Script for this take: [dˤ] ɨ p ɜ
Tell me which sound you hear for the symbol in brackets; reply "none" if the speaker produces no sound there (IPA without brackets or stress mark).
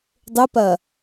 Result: dˤ